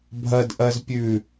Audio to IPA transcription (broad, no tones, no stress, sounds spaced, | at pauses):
bʱ ɐ d ʔ ɐ z pʲ ʉ